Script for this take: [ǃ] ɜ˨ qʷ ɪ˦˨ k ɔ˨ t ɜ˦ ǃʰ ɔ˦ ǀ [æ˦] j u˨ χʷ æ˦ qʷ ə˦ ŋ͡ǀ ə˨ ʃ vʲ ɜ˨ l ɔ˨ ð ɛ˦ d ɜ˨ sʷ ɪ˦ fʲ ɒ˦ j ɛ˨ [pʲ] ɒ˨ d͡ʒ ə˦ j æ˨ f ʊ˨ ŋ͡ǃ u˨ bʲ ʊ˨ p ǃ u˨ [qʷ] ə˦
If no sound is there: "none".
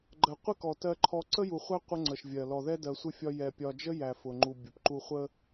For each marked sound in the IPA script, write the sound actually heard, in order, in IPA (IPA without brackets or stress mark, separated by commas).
ɡ͡ǃ, ə˦, pʲ, χʷ